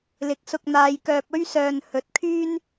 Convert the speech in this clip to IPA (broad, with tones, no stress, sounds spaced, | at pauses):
l ɪ˨˥ k̚ s ʊ˧ k̚ n̪ aː˧ j k œː˧ p̚ ɵ˥ ɥ s œː˧ n h ɵ˨˥ t̚ kʰ yː˥ n